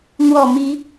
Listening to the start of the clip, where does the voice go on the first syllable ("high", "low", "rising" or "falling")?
low